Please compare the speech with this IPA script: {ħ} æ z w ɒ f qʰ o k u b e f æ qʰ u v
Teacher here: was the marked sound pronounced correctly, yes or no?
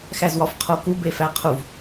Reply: no